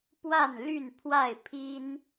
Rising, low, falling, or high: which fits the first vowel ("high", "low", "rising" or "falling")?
falling